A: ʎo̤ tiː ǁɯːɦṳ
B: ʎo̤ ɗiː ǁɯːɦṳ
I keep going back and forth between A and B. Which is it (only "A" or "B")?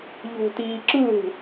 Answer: A